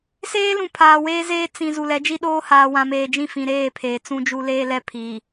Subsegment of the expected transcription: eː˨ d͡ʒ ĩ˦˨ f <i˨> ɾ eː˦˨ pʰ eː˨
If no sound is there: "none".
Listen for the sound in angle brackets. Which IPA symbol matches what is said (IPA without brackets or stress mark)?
ĩ˨